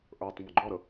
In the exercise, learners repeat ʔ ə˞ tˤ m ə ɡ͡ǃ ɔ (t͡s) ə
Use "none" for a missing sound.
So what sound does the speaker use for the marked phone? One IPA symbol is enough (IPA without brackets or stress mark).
ɾ